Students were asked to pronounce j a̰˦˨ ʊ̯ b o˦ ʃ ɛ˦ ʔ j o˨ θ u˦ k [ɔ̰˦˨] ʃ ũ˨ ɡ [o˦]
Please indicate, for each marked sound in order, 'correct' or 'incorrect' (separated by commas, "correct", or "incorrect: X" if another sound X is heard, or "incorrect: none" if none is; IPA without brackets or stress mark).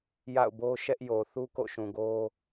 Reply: incorrect: o̰˦˨, correct